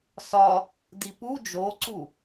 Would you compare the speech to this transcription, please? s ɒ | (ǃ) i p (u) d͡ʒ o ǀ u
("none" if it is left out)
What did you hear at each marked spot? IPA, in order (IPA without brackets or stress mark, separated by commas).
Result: d, u